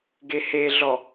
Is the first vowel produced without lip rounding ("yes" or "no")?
yes